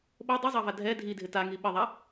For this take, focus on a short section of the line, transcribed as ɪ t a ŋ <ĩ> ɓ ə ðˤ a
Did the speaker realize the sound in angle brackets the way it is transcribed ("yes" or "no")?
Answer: no